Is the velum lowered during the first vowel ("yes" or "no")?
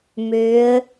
no